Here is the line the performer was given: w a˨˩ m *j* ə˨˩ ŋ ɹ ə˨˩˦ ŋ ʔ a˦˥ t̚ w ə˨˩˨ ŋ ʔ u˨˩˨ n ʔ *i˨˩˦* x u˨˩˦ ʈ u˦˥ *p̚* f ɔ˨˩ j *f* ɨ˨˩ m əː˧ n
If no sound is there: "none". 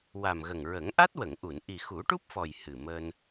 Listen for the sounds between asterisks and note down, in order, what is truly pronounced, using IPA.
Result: ɣ, i˨˩, p̚, h

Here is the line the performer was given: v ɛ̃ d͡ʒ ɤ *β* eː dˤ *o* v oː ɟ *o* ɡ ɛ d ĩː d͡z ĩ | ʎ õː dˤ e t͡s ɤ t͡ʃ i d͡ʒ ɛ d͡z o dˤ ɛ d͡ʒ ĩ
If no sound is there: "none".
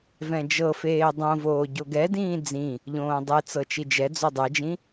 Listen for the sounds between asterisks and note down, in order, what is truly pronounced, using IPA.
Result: f, õ, o

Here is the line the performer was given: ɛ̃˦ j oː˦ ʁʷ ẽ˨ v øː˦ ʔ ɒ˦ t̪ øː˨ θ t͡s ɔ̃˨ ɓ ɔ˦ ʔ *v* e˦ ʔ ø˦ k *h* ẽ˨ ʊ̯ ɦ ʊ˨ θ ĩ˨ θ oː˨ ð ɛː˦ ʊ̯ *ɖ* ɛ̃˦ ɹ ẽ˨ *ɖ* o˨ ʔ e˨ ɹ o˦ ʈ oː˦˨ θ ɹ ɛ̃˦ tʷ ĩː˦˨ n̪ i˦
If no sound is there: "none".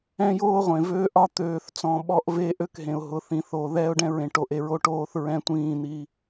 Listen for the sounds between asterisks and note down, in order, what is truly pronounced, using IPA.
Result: v, ɦ, ɖ, ʈ

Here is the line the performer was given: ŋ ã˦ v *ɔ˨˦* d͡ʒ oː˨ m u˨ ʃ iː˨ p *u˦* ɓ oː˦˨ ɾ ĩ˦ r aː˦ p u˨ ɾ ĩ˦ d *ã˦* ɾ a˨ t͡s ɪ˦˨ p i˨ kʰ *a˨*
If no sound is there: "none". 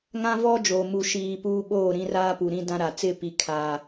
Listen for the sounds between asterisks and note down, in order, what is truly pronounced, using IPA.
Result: ɔ˦, uː˦, ã˦, a˨

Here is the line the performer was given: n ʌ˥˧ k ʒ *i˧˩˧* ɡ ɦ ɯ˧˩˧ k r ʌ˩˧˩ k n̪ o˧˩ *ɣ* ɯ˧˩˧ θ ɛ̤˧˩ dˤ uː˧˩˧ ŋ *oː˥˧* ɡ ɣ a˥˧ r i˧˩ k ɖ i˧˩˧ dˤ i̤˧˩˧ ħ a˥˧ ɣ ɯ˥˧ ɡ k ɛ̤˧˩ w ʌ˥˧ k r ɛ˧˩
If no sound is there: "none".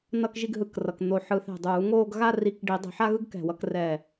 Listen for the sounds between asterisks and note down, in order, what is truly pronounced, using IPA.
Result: i˥˧, ħ, oː˥˧

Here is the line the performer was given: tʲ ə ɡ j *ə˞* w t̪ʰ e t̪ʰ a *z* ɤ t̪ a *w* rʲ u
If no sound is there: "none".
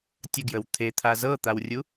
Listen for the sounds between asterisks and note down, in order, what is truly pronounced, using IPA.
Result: ə, z, w

